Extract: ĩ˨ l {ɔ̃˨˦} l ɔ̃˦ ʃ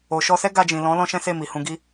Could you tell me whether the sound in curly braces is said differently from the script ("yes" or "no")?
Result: no